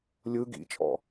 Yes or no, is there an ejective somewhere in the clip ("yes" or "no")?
yes